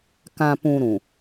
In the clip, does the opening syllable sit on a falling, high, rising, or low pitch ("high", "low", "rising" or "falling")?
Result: low